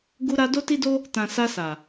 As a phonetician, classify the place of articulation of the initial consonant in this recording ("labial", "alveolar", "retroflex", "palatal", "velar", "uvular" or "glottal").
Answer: velar